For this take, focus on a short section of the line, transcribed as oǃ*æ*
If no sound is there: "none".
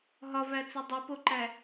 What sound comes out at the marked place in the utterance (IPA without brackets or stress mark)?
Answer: æ